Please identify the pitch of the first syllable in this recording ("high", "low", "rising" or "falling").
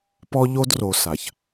high